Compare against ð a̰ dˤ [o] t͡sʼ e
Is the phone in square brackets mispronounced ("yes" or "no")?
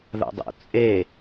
yes